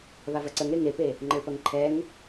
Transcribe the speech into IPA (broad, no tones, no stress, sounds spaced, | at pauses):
β a v ɐ ǀ ə ŋ ɾ e ŋ e p e | ŋ͡ǃ ə ɭ p ɐ ŋ ǃʰ ɛ ŋ